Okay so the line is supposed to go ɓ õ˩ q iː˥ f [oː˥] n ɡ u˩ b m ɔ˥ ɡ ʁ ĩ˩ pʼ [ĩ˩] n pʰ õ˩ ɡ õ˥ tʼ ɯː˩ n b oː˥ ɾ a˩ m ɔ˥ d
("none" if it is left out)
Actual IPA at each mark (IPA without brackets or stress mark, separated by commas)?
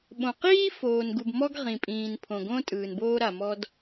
oː˩, ĩː˩